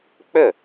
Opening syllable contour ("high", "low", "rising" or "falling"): falling